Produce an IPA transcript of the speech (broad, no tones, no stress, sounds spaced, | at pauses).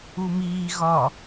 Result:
u m iː ɣ ɒ